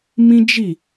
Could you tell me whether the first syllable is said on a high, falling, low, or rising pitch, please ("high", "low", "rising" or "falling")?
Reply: high